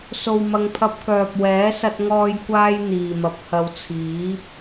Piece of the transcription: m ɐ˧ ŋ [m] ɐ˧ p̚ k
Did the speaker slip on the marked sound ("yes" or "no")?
yes